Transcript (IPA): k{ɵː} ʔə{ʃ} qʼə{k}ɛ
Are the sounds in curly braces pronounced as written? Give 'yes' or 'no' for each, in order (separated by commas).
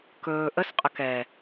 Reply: yes, no, yes